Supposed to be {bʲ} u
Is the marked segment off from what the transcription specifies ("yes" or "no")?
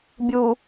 no